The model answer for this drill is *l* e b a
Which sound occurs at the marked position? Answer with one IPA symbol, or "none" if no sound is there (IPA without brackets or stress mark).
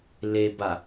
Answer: l